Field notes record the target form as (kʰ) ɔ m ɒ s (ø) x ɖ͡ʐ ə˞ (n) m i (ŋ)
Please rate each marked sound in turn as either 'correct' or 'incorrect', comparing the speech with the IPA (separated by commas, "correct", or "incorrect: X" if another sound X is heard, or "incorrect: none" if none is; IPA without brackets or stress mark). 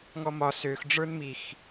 incorrect: ŋ, correct, correct, incorrect: x